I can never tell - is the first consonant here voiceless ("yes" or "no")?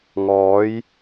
no